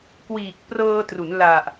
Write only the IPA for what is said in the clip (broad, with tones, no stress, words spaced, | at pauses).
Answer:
kwiː˨˩k̚prɤː˧tru˩˦n la˨˩ʔ